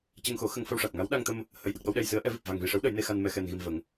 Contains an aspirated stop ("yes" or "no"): no